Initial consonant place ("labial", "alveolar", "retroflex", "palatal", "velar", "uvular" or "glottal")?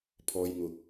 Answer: labial